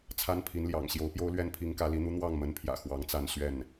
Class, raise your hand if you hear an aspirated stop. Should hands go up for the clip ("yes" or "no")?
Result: yes